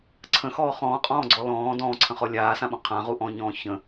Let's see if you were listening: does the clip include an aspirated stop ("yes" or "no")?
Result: yes